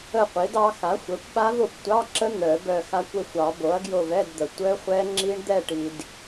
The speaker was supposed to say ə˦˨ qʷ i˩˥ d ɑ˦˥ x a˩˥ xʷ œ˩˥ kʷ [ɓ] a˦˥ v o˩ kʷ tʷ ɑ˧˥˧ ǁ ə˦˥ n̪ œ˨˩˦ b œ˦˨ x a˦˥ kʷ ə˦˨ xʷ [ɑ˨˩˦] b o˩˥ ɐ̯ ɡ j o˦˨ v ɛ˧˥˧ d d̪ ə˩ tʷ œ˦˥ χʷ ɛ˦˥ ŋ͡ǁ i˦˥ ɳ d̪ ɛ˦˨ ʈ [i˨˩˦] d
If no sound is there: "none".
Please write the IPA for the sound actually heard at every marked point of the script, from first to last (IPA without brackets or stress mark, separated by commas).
ɓ, ɑ˨˩˦, i˩